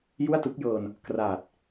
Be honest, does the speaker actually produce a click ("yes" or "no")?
no